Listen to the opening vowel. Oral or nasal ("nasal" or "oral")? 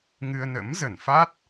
oral